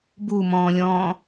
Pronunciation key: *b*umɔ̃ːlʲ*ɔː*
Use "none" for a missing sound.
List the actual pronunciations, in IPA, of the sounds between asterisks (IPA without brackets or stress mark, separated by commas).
b, ɔ̃ː